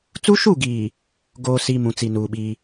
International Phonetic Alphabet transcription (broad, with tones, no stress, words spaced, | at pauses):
t͡su˦ʃu˦˨ɡiː˨ | ɡoː˨si˨ mũ˨t͡si˨nuː˨ɓiː˦